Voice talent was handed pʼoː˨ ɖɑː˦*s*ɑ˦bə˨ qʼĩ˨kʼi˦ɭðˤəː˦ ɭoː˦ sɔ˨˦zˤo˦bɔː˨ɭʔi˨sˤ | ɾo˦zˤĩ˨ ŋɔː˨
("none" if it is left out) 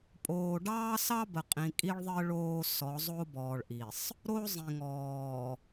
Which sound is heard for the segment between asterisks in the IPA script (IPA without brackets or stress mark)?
s